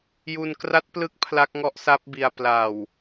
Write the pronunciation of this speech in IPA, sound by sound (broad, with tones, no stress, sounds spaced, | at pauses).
j u˧ n k r a˦˥ t̚ p l ɯ˦˥ k̚ pʰ l a˦˥ k̚ ŋ ɔ˦˥ ʔ s a˦˥ p̚ b i˧ a̯ p l a˨˩ w